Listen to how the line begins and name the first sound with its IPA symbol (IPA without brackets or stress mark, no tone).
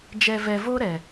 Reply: d͡ʒ